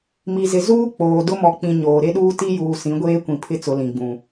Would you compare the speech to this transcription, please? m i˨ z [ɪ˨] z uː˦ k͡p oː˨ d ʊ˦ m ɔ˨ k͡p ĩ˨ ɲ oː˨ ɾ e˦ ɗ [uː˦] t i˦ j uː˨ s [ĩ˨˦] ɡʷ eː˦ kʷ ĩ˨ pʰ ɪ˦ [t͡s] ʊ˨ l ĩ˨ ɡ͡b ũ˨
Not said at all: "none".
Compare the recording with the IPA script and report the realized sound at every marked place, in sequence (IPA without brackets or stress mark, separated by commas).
ɪ˨, uː˦, ĩ˨˦, t͡s